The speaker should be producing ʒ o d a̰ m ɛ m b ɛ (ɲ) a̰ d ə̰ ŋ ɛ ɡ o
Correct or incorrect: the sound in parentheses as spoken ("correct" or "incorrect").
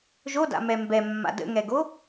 incorrect